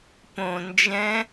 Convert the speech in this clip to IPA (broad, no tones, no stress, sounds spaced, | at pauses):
p õ n d͡ʒ ɛ̃